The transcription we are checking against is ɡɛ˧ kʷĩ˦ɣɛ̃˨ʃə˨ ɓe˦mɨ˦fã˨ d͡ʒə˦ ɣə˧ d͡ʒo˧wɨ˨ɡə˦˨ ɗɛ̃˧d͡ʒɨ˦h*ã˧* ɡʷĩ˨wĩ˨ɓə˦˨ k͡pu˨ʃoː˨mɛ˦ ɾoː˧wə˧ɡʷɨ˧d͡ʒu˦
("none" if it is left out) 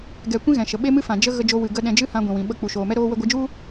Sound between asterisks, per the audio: ã˧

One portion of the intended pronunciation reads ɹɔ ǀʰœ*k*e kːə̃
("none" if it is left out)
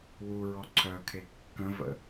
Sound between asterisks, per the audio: kʰ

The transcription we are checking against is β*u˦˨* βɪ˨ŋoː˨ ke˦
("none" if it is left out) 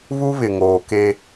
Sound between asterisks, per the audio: u˦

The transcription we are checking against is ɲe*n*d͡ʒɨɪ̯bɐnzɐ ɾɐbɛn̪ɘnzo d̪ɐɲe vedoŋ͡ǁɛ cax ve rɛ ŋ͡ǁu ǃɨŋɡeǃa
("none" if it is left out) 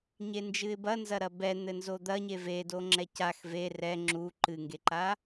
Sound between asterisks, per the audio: n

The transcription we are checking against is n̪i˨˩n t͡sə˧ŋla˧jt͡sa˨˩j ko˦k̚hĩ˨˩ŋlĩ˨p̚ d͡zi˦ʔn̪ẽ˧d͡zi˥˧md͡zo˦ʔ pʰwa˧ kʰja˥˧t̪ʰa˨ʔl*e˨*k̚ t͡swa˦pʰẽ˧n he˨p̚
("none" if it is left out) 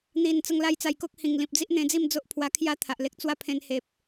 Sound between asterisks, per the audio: e˦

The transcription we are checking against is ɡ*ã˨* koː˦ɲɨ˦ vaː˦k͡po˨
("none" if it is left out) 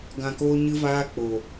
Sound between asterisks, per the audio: ã˧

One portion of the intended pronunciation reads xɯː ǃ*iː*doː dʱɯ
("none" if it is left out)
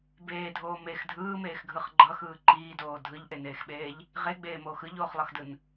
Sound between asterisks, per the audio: iː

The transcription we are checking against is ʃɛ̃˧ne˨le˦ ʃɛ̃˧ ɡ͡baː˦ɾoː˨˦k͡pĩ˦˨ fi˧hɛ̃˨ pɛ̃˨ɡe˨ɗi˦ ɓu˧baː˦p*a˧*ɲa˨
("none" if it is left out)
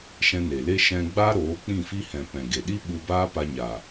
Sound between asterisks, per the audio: a˧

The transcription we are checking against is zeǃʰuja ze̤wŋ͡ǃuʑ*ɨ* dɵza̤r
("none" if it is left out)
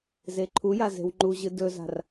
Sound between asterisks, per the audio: ɨ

